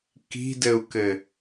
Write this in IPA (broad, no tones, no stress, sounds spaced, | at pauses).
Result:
k i̤ d ɘ u̯ k ɘ